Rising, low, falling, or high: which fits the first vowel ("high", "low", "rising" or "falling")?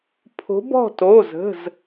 rising